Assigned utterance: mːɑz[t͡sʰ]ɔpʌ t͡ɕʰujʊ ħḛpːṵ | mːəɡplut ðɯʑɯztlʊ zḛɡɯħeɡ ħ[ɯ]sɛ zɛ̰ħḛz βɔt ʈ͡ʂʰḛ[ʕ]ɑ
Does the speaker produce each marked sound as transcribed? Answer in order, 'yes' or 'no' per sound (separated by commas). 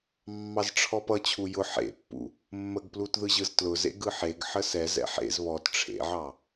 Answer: no, no, yes